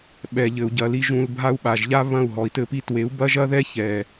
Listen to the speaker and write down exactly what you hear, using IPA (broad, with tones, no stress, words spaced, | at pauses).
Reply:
ɓɛ˨ʎɘ˨u̯ɟɐ˨li˧ ʒũ˧lbʱa˦u̯ɓa˨ʒ ʎa˦βɐ̃˦˨u̯ ɦɔ˨i̯tɘ˦pi˦ twe˨˦u̯bɐ˦ʒɐ˦ðɛ˦ çɛ˨